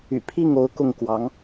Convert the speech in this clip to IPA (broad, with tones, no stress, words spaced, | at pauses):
y̰˨˩pʰi˥˩ŋo˧˥ʊ̯ kʊ˥˩ŋkwɑ˧˥ŋ